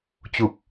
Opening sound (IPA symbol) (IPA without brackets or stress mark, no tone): t͡ɕ